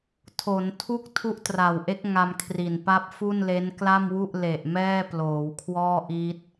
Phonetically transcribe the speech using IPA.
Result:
tʰo˩˦ntʰu˥˩k̚ tʰu˦˥ʔtra˨˩wʔe˦˥k̚ ŋa˧mkʰri˨˩npa˦˥p̚ fu˥˩nle˦˥nkla˥˩mwu˥˩ʔ le˨˩ʔ mɛː˥˩ploː˩˦wkʰwɔː˥˩ʔi˦˥t̚

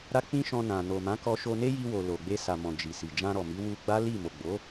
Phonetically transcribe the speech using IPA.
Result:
ɾa˦k͡pĩ˦ʃɔ̃˧nã˨ no˨ mã˨˦kɔ˧ʃo˧ ne˦ji˧wo˨ lo˨ ɡ͡be˧sa˨mɔ̃˨ d͡ʒi˨si˨ d͡ʒã˧ɾɔ˨mi˨˦ wu˧ɡ͡ba˦ li˦˨ mo˨ɡ͡bo˨˦

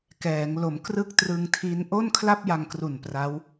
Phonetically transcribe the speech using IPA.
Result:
kɛː˩˦ŋ lo˩˦mkrɯ˥˩k̚trɯ˧ŋtʰi˦˥n ʔo˥˩nkʰla˥˩p̚ja˧ŋkru˨˩n pra˦˥w

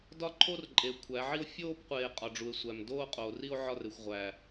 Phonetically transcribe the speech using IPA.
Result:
dɒ˦ǃʰo˦r ǃʼe˨ kʷʰæ˨˦ʕi˦o̯ fʲoː˦pqʷeː˨ qʼɒ˨ɖ͡ʐu˨e̯sʷæ˨m doː˦qʼoː˨ri˦o̯ ʕɒ˦˨re˨xʷʁʷæː˨

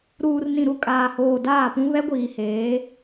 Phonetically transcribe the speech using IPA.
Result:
ɾuː˨rnĩ˨ɾu˨ kʼaː˨hoː˨ daː˦˨pũ˦ βɛ˦ɡʷiː˨heː˨˦

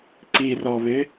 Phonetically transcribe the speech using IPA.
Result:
ǀirɔβɪ

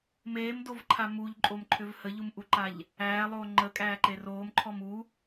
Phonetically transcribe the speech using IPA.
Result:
meːmdovǃʰa muʎǃʼomǃʰʏv həʎumʔuǃaʎ | æːlˠoː ŋ͡ǃəkʼæːǃe roːmǃʰɔm u

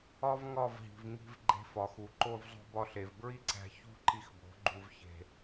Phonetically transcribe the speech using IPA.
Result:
ɒ˦vŋɒ˦˨vɦi̤˨v ŋi̤˧v ɡ͡ǃe̤˧fɒ˨xu˨ ǃo˧vzˤo̤˧bɒ˧ɬe˨v bɹi˦ǀæ̤˧ çṳ˦ǃi˧xbo̤˨˦ɡ͡ǃu˧v çe̤˧

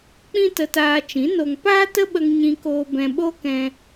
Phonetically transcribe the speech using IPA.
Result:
k͡pĩ˦tə˧taː˧t͡ʃĩ˨˦ no˧ŋ paː˦tə˦ɓə˧ŋ ɲĩ˧koː˧ bɛ̃˧ɓo˦kɛ̃˧

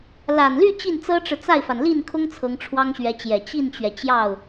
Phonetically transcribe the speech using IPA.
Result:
la˨˩nly˥˧ t͡ɕi˥˩nt͡sɤ˥ʈ͡ʂɻ̩˨ t͡sa˥˩ɪ̯fa˩n li˥˩nkʰʊ˥ŋ t͡sʰɤ˧˥ŋʈ͡ʂʰwɑ˥ŋɕɥɛ˧˥t͡ɕjɛ˨˩ t͡ɕi˥˩nt͡ɕɥɛ˩ t͡ɕjɑ˥˩ʊ̯

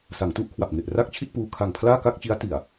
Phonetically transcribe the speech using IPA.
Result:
sa˩˦ŋtu˥˩ʔkʰwa˨˩p̚ŋe˨˩ʔ ra˥˩k̚t͡ɕʰi˥˩t̚puː˧ kʰa˨˩ŋpʰlaː˥˩ka˥˩k̚t͡ɕi˦˥a̯ ti˨˩a̯

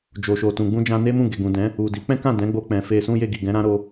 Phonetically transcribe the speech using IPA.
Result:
d͡ʒo˨ʃo˨tũ˨ ɡ͡bũ˧d͡ʒã˧ ne˦mũ˦˨ ɡe˨ɡũ˨dɛ̃˨˦ | u˨di˨˦ k͡pɛ̃˦kã˦˨ dɛ̃˨˦ɡ͡bo˧ k͡pɛ̃˨ fe˧sũ˦ je˧ɡi˨ɡɛ̃˨˦ɾã˦ ɾo˧

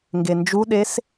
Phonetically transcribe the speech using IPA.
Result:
ŋɡend͡ʒuɗes

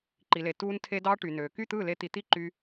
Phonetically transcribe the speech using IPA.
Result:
ǃi˨le˨ tuː˧ntʰe˧ dɑː˦ʈy˨nøː˨ ky˦˨t̪ɯː˦˨le˧ t̪i˨t̪i˦ǃy˧

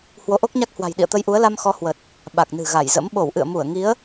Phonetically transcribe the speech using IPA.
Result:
hwo˨˦ʔo˦˥k̚ɲa˦˥k̚hwa̤˨˩j ɗḭ˧˨ə̯t̪ə˧jʔu˨˦ə̯la˧m xɔ˨˦ hwə˨˩t̚ | ɓa˨˩k̚nɨ̤˨˩ɣa˧˩jzə̰˧˥m ɓo˧˩wʔɨ̰˧˨ə̯ mu˧˩ə̯ ŋi˨˦ə̯

